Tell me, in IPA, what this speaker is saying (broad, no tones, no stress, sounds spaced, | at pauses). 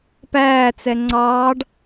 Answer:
p æː t͡s ɛ ŋ͡ǀ ɑː ɖ